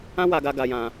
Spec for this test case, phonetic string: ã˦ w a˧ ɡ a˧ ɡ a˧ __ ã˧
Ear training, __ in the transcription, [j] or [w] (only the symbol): j